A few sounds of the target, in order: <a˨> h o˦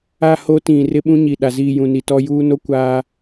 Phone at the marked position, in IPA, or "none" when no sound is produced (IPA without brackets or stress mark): a˦˨